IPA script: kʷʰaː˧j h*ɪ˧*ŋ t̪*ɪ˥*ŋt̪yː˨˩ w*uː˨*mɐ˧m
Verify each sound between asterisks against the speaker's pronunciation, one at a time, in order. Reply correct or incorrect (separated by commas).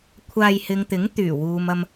incorrect, incorrect, correct